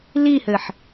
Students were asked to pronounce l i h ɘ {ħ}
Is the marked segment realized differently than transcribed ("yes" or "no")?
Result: no